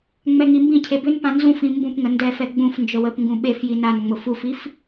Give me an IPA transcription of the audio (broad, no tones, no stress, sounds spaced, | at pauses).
ŋ͡m ɛ ŋ i m b ĩ cʰ e b ʏ n p ã n z ũ f ĩ m b ũ p ŋ ə n d ɛ f ɛ ɡ͡b ũ f n d͡ʒ ə w ə p ŋ ɡ ũ ɓ e f j i n a n ŋ͡m ʊ f u f i f